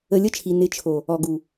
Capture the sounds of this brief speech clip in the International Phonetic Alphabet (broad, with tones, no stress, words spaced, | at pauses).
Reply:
ə˧lʲə˦t͡ʃʰi˨ nɪ˨˦t͡ʃʰo˨ | ɔ˨ɡu˨